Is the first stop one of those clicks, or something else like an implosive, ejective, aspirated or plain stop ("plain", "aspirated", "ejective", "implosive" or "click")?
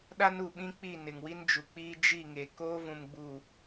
implosive